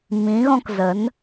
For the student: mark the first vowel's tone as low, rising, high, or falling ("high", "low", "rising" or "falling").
rising